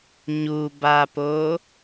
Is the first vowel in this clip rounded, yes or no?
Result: yes